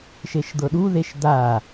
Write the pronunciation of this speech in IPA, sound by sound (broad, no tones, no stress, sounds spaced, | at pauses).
ʃ e ʃ d̪ ɤ ɗ u ð e ʃ d̪ a